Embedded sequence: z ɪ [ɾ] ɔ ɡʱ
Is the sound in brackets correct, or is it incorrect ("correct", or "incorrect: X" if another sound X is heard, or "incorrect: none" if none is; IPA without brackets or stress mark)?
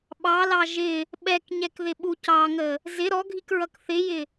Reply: correct